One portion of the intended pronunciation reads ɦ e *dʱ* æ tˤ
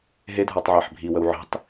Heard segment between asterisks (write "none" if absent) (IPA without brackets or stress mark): dʱ